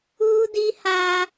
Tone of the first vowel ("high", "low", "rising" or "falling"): high